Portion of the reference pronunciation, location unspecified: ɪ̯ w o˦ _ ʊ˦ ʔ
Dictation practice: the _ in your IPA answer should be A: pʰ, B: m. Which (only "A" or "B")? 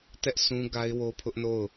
A